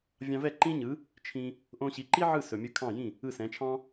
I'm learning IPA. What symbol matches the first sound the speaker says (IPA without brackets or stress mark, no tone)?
vʲ